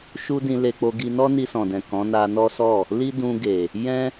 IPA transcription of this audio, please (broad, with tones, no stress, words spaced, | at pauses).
ʃu˦dĩ˧ le˧k͡po˧ɡi˧ nɔ˦ni˧sɔ̃˨dɛ̃˨ kɔ̃˨˦na˧nɔ˦ sɔ˦˨ | li˦dũ˧ ɡe˨ | jɛ̃˦